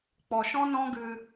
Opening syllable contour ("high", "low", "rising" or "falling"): low